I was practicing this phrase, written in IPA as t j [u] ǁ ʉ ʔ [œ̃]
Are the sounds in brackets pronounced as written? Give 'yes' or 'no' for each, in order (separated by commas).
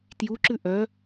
yes, no